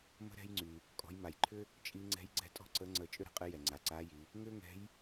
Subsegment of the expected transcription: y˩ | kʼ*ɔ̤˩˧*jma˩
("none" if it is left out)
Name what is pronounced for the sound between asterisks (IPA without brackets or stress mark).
ɔ̤˩˧